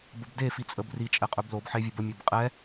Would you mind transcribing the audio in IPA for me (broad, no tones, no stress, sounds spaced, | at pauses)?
b ə b d e f i t͡sʼ ə b r i t͡ʃʼ ɛ qʼ ɵ b l o b ħ e vʲ ɵ b ə mʲ ɛ b qʼ ɛ